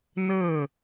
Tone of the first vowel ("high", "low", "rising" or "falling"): falling